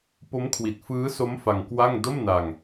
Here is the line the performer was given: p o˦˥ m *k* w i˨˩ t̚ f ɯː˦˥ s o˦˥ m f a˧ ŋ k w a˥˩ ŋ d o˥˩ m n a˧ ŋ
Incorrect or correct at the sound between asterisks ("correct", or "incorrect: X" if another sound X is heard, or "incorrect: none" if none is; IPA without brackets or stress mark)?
incorrect: kʰ